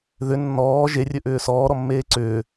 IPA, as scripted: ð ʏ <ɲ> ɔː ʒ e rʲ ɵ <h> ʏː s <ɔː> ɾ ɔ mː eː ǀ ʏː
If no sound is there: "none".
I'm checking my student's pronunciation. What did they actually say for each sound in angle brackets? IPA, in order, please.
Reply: nː, ʔ, ɔː

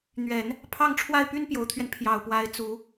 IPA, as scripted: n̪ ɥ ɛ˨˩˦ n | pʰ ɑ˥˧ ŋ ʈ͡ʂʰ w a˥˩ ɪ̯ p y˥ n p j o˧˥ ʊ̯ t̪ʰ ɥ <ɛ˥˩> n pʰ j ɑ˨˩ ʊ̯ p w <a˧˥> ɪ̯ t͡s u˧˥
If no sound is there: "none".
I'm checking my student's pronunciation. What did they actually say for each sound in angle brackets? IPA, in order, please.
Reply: ɛ˧, a˧˥

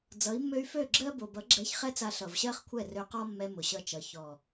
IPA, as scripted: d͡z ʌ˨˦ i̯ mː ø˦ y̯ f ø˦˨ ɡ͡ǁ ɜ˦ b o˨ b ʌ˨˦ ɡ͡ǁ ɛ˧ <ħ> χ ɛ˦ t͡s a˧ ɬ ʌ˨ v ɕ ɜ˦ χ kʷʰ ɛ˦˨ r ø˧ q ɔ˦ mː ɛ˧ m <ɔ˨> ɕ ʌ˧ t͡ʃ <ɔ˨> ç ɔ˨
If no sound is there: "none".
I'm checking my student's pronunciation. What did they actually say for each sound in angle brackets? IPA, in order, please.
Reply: ç, ʊ˨, ʌ˨

